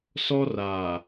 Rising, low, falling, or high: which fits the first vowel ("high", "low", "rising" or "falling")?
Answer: high